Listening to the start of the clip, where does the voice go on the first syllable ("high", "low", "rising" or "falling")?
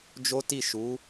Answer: high